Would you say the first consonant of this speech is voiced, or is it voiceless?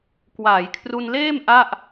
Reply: voiceless